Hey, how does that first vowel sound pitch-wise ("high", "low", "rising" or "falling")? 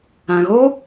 low